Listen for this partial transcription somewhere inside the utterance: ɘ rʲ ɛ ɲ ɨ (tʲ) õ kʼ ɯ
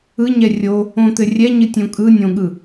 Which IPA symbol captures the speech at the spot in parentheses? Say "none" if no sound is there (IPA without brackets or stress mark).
tʲ